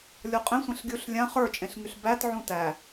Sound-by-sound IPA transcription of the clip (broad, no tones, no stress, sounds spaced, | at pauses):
lʲ ɔ qʼ ẽ sʷ ẽ ɬ ɡʲ u ɬ lʲ ã χ ə˞ t͡ʃʼ ẽ ɬ ŋ y ɬ b æ t ʕ ũ t æ